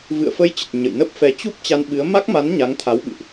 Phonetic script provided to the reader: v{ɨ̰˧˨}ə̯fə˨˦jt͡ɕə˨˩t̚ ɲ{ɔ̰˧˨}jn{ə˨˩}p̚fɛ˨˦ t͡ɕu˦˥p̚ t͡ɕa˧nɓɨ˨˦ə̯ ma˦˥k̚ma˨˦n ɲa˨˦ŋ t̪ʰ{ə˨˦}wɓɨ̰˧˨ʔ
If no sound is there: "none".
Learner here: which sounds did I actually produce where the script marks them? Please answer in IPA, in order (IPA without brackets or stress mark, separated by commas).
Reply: ɨ̰˧˨, ə̰˧˨, ə˦˥, a˨˦